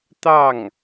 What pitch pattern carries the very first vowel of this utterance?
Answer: falling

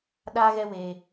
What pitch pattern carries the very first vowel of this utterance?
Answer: high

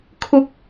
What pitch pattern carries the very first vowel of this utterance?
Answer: low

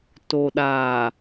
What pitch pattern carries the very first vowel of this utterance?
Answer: low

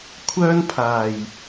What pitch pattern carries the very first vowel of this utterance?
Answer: high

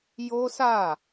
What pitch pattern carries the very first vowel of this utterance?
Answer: high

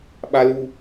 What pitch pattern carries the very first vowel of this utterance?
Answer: high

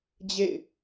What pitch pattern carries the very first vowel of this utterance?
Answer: falling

